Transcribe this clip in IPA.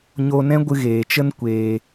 ɲ o˧ n ɛ̃˦ ɡʷ ɨ˧ ɣ eː˨ t͡ʃ ə˦ n kʷ eː˧

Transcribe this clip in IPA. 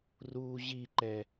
r uː ʑ i ǃ ɛ

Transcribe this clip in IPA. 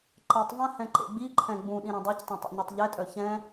ǃ ɛ tˤ v ã h ɛ̃ ǃ ḛ ɡ͡b i ǃʰ ɛ̃ ɡ͡b ũ ɗ ĩ ɾ ɛ̃ dˤ a c tˤ ɛ̃ tˤ ṵ ɲ ɤ tˤ ʎ ɛ tʼ œ ç ɛ̃

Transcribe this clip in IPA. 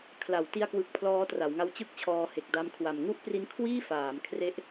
kʰ l a˩˦ w t i˧ a̯ k w ɯ˨˩ k̚ pʰ l ɔː˦˥ t r a˩˦ w ŋ a˦˥ w t͡ɕ ɯ˥˩ k̚ t͡ɕʰ ɔː˧ h e˨˩ k̚ d a˦˥ m kʰ w a˨˩ m ŋ u˥˩ ʔ p r i˦˥ n kʰ w iː˥˩ f aː˩˦ m kʰ r e˦˥ ʔ

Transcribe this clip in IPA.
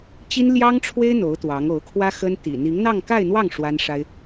t͡ɕ i˥ n l j ɑ˥ ŋ ʈ͡ʂʰ w e˥ ɪ̯ n̪ o˧˥ ʊ̯ t̪ w ɑ˧˥ ŋ o˧˥ ʊ̯ kʰ w ä˥ x ə˥ n t̪ ḭ˨˩ n̪ i˧˥ ŋ n̪ ɑ˥˧ ŋ k a˥˧ ɪ̯ n̪ w ɑ˥˩ ŋ ʂ w a˥ n ʂ a˥ ɪ̯

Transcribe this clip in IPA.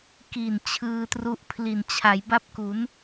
k i˨˩ n t͡ɕʰ ɯː˧ t r u˦˥ ʔ pʰ l i˨˩ n t͡ɕʰ a˩˦ j b a˥˩ p̚ k u˩˦ n

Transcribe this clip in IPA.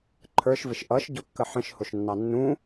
ǃʰ ə˞ ʃ v ɪ ʃ ʔ ʌ ʃ ɟ ʊ kː ə ħ ə̃ ʃ h ʊ ʃ nː ɑ nː ũ

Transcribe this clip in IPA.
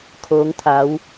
kʰ oː˩˧ ŋ t̪ʰ a˩˧ w

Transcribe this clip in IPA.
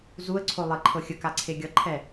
z u ə̯ ǀʰ o lˠ e ǃʰ ɤ xʲ ə k a ǀʰ e ɡʲ ʌ ǃʰ ɛ

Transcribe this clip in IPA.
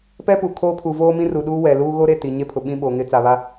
p ɛ˦ p u˨ kʰ oː˦ pʰ u˨ v oː˦ m ĩ˦ r u˨ ɗ uː˦ w ɛ˨ l uː˦ ɣ o˦ ɾ e˦˨ t i˨ ɲ e˦ pʰ ʊ˨ ɓ ĩ˦ ɓ oː˨ ŋ ɪ˦ t͡s a˨ β a˦

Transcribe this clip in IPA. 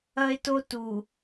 ɐ˦ e̯ t o˦ t u˨

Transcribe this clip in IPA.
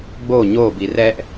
ɡ͡b o ɲ o b i r ɛ ʔ

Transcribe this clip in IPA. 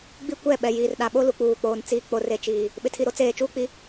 ɡ͡b i˦ kʷ ɛ˦˨ ɓ ɛ˨ j iː˨ r ɗ a˨ ɓ o˦ l u˨ k͡p uː˨ k͡p oː˨ n t͡s iː˨ k͡p o˨ r e˨ t͡ʃ iː˨ | ɓ ɪ˨ tʰ i˨ ɾ o˦ t͡s eː˨ t͡ʃ uː˦ k͡p i˦

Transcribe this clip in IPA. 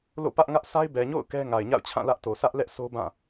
l o̰˦˨ p ä˦ ʔ ŋ ä˦ ʔ sʰ a˦ ɪ̯ b ɛ˨ ɲ o̰˦˨ ʊ̯ k ɛ˦ ŋ a˨ ɪ̯ ɲ a̰˦˨ ʊ̯ t͡ɕʰ ã˦˨ l ä˦ ʔ t o˨ s ä˦ ʔ l ɛ˦ ʔ s o˦ b ã˦˨

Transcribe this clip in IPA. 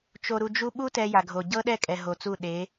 t͡ʃ o˨ ɾ u˨ d͡ʒ u˦ ɓ u˦ t ɛ˦ j a˨ ɡʱ o˨ ɟ ɤ˦ ɗ ɛ˦˨ kʼ ɛ˨ ɦ o˨ t͡s u˦˨ ɗ e˨˦

